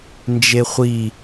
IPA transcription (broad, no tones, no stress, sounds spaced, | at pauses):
n d͡ʒ e χʷ i